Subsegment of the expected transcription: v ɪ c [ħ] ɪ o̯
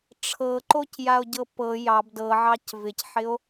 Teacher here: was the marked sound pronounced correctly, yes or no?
yes